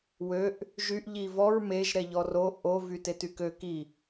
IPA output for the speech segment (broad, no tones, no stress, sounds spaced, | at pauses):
w ø ʔ | ʒ y ʔ ʎ i v ɔ ɹ m e ʒ ɾ ɛ ʎ ɔ r o ʔ o v y t e t y k ø k i